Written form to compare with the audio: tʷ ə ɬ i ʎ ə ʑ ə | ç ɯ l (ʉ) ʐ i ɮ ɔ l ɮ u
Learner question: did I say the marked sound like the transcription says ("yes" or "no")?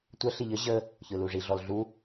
no